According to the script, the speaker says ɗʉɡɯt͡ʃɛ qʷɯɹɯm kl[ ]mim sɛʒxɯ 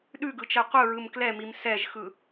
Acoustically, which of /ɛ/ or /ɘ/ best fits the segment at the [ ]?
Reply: ɛ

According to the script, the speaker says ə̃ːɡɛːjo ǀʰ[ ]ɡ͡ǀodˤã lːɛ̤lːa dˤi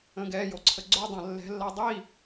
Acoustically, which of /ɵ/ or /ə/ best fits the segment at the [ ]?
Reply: ə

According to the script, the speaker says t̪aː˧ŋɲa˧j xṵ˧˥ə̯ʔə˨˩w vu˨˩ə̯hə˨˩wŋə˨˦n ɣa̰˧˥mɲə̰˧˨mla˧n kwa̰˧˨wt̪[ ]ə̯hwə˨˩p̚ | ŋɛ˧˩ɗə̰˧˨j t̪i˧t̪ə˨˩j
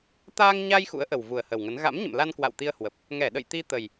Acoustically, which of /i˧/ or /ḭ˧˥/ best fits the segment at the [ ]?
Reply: i˧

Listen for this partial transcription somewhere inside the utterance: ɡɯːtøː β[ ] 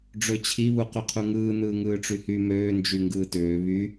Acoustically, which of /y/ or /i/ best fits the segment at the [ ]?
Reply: y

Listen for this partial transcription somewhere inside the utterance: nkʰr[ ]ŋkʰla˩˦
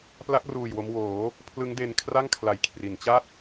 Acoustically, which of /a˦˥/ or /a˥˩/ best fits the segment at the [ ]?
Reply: a˥˩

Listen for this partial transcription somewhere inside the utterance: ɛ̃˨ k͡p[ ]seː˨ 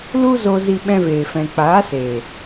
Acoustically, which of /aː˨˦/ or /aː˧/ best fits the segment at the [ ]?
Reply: aː˨˦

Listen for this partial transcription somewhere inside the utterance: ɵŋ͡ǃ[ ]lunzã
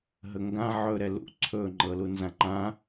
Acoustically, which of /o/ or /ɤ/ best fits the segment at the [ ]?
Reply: ɤ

